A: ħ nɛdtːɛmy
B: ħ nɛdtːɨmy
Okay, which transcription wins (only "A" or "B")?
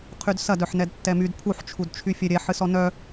A